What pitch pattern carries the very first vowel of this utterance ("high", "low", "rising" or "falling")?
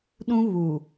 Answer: high